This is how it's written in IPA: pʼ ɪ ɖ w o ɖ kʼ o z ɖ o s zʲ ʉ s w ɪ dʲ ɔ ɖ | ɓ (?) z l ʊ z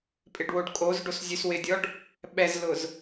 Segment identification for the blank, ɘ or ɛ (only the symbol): ɛ